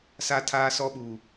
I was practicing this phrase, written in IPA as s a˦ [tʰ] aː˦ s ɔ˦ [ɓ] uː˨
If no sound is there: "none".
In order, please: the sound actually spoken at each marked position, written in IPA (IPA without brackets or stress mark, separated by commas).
tʰ, ɓ